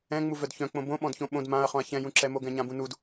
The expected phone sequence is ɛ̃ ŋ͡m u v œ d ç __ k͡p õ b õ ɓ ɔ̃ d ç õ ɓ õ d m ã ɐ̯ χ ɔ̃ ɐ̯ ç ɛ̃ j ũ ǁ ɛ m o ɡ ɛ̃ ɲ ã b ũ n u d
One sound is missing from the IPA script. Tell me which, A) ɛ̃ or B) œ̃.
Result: B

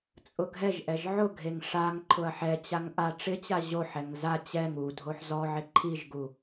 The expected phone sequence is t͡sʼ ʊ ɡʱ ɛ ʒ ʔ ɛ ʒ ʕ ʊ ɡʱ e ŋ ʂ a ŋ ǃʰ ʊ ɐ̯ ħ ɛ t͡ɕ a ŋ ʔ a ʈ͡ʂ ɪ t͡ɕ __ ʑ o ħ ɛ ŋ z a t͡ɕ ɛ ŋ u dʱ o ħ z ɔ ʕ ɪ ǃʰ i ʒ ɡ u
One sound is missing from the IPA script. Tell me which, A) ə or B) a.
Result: B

